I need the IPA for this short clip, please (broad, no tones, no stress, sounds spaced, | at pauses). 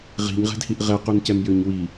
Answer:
ʁ i̤ ɲ ʁ ɛ̤ d h i ʔ ʁ ɛ q u n c ɛ m j ø ɲ w i